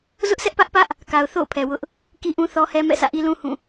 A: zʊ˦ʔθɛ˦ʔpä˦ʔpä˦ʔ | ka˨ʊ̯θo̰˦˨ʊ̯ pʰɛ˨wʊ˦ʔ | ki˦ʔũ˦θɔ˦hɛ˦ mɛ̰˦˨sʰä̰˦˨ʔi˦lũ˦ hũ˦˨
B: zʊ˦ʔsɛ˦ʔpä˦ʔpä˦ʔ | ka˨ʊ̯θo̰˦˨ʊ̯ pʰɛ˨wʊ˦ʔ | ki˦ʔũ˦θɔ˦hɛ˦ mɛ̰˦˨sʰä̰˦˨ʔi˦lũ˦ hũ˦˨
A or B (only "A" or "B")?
B